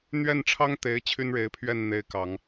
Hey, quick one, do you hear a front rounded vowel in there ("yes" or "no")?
yes